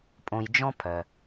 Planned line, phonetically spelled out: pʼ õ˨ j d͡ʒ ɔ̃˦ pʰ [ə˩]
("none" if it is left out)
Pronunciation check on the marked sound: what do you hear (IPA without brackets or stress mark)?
œ˩